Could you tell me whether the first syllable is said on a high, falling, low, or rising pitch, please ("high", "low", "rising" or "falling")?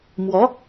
rising